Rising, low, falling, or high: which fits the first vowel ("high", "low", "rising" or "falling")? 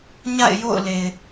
falling